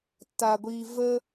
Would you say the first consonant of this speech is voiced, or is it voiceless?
voiceless